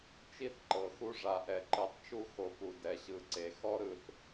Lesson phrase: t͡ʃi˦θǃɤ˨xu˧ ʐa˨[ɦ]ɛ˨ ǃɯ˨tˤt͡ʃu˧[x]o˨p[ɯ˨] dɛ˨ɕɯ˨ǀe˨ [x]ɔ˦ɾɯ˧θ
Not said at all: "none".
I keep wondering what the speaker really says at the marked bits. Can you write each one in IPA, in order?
ʔ, x, u˨, x

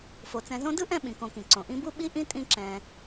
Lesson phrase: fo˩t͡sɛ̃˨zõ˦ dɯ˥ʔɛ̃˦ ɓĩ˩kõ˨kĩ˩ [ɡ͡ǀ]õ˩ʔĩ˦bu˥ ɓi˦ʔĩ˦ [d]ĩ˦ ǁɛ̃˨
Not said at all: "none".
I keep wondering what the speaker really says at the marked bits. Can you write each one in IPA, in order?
ǀ, tʼ

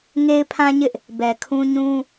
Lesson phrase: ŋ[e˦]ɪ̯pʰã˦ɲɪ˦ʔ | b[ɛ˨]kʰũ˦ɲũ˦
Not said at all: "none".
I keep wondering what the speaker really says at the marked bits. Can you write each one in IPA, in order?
e˦, ɛ˨

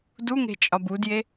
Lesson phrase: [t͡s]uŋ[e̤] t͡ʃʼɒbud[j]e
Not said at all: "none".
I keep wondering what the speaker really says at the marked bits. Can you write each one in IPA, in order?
d, e̤, j

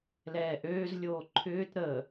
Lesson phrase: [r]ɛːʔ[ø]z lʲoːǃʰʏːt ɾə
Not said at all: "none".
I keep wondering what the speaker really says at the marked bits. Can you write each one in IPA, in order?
l, øː

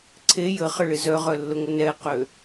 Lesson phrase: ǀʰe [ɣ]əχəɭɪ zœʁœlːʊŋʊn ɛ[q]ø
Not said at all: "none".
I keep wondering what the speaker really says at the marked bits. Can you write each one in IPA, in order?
j, q

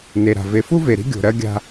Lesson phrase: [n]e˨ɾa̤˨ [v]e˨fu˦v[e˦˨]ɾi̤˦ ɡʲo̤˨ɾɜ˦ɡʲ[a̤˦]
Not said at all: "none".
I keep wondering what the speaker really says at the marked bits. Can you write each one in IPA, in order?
n, v, e˨, a̤˦

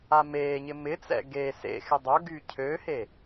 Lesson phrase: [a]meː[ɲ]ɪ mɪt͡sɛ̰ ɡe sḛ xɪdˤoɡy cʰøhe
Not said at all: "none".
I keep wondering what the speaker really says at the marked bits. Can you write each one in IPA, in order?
a, ɲ

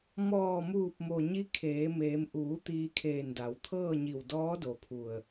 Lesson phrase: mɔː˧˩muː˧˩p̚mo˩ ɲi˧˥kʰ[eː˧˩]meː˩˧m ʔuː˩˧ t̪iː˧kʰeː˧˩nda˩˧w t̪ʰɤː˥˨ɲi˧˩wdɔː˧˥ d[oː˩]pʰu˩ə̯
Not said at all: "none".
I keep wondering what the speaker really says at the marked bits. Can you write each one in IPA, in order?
eː˩˧, o˩

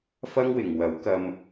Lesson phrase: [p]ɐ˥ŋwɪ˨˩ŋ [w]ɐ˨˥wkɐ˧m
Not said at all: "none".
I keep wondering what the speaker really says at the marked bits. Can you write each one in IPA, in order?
f, w

